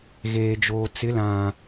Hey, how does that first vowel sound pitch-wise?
low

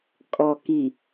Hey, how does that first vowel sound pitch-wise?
low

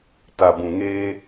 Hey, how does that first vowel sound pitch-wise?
low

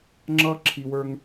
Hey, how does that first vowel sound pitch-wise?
high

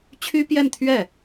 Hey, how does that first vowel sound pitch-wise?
high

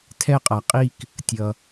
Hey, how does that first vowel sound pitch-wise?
falling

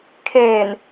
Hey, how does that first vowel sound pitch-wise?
low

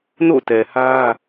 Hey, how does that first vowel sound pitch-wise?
falling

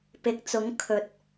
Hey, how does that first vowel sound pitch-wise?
rising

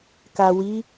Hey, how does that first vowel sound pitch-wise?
low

